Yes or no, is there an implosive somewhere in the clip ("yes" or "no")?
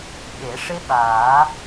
yes